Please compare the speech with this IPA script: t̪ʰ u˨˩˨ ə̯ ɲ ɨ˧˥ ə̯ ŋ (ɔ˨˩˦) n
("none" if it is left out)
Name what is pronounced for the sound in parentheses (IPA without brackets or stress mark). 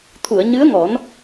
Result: ɔ˨˩˦